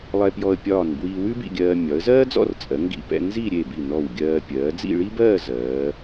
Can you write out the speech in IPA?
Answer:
lˠ ɛ˧ p j ɔ˧ ə̯ pʲ ɒː˧˩ n b w iː˧ w ʉ˥ b ḭ˥˧ ɡʲ ɜː˧ mʲ ɒ˩˧ ə̯ z ɜː˥ d͡z ɔ̰˥˧ r t͡sʼ ɜ˩˧ ŋ ɡ ḭ˧˩ p ɛ̰˧ n z i˥˧ ɾʲ e˧˩ b i˧˩ n ɔ˧˩ w ɡʲ ɜː˧ pʲ ɜː˩˧ d͡z ḭ˥˧ ɭ i˥ b ɜː˥˧ z ɜː˩˧

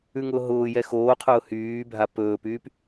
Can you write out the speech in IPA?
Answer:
ʉ ŋ ʊː ɦ ʊː j ɛ x oː qʰ ʊː h yː bʱ a p ɵː p yː p

